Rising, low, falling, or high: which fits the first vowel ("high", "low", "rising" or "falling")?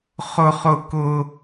high